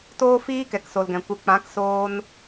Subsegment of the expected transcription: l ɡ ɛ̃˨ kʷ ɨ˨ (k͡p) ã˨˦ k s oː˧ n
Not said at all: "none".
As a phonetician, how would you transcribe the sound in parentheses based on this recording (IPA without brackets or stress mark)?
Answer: k͡p